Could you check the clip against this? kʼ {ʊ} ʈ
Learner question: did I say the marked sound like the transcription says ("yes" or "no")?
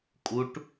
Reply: no